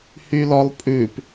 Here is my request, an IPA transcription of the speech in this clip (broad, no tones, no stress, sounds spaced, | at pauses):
h y l ɔ lˠ pʼ ʉ p